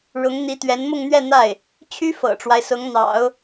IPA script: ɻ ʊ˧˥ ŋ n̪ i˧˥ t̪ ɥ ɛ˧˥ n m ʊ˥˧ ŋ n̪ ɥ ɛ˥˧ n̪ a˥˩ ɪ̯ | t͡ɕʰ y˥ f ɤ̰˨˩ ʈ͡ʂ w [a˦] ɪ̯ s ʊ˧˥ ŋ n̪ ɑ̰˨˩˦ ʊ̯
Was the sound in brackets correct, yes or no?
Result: yes